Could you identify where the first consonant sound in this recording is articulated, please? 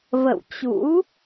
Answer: labial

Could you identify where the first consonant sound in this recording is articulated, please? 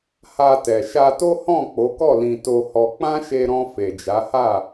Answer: glottal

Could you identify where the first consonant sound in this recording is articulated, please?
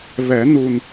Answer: labial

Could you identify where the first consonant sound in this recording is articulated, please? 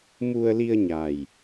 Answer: labial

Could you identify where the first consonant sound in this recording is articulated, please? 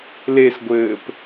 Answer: alveolar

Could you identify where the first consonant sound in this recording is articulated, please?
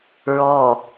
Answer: alveolar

